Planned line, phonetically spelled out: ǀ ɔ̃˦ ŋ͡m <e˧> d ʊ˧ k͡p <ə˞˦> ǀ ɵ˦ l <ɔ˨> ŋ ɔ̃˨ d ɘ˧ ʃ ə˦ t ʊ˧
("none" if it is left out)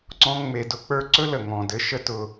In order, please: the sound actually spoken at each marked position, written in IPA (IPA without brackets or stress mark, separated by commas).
e˧, ə˞˦, ə˨